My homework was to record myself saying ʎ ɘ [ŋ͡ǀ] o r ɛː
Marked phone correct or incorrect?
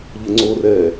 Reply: correct